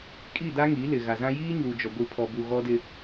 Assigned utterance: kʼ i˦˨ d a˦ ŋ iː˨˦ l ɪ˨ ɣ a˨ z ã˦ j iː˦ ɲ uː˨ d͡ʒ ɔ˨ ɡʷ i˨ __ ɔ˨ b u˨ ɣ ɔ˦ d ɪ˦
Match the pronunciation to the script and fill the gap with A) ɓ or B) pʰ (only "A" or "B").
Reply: B